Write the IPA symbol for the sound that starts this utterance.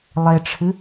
lˠ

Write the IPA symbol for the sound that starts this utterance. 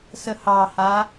s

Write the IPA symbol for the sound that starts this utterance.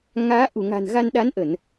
ŋ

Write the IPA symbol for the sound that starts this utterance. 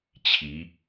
t͡ɕʰ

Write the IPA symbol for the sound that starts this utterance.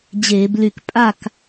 d͡ʑ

